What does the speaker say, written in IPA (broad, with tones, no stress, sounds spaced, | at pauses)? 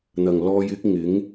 n̪ ɐ˨ ŋ l ɔː˧ j ɪ˥ k̚ ŋ ɪ˨˥ ŋ